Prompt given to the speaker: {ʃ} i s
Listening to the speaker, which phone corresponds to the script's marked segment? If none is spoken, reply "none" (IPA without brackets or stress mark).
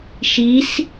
ʃ